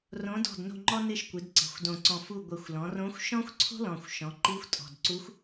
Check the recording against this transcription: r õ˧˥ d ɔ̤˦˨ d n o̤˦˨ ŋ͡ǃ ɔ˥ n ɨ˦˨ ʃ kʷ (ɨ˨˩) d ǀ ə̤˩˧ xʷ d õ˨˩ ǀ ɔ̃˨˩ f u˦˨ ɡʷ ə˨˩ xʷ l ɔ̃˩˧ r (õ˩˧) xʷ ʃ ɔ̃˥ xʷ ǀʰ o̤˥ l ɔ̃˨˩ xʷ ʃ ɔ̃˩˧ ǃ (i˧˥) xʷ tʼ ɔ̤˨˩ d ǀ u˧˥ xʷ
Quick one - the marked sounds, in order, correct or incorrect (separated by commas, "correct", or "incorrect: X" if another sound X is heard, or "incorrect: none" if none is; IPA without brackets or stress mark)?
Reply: incorrect: ɨ˩˧, incorrect: õ˧˥, correct